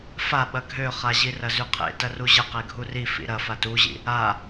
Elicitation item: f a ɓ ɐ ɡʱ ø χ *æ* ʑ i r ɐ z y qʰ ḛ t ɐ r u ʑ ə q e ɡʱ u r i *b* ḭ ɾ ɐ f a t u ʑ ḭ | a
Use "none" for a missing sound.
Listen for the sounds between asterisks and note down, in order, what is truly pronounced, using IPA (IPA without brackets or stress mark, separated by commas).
a, f